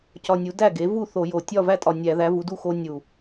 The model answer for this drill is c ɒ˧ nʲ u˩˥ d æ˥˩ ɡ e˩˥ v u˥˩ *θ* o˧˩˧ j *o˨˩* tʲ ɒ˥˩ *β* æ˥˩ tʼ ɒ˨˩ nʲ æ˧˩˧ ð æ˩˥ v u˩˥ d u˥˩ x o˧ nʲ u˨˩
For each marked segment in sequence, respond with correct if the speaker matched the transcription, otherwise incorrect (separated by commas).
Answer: correct, correct, incorrect